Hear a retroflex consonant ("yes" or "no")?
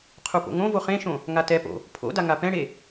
yes